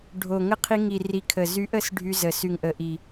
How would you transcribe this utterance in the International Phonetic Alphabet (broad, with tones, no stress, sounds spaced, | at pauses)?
ɖʱ o˨˩ ŋ ə˧˥ qʰ i˧ ŋ i˨˩ r i˨˩ kʰ ə˨˩ z y˧˥ ʔ ə˧˥ s ɖʱ y˧ z ə˨˩ s y˨˩ ŋ ʔ ə˨˩ ʔ i˨˩